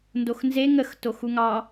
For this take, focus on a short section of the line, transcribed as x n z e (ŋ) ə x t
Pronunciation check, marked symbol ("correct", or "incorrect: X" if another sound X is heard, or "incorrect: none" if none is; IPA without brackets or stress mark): correct